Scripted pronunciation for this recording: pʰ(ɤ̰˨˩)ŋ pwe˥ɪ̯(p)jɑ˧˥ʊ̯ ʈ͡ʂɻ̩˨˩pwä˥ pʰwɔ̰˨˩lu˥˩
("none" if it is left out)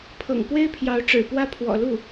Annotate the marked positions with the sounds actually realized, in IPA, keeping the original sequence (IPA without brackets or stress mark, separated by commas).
ɤ̰˨˩, pʰ